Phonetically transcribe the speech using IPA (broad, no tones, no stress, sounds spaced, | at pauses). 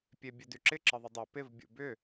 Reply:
pʲ e bʲ ɵ d y ǁ ɪ ǁ ə ðˤ ɪ dˤ u p ɪ v bʲ ṵ b ʏ